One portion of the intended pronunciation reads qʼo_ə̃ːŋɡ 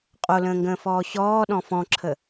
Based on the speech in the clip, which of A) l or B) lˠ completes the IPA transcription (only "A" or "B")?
A